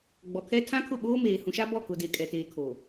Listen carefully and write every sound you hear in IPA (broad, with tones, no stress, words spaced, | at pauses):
ɡ͡bɔ˨kʰɛ˦ tʰã˦ kʰʊ˦˨ɓoː˦meː˨ hũ˨ʃa˦bɔ˦˨ kʊ˨de˨ kʼɛ˨teː˨kʰo˨